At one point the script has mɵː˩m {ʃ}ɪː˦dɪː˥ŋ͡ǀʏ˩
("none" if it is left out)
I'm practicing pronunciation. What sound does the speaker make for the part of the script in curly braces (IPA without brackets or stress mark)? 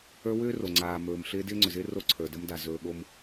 ɬ